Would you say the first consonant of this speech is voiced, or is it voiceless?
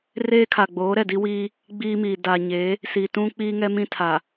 voiced